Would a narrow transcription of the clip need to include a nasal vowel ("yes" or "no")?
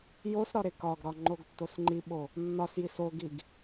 no